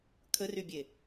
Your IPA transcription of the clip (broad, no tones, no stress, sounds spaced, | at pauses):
kʰ ə r y bʲ e